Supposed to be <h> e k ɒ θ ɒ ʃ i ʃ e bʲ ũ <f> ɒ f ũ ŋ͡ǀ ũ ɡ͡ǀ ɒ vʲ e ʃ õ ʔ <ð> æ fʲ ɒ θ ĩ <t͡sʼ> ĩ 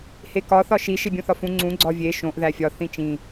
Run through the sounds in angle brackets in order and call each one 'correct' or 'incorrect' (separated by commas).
correct, incorrect, correct, incorrect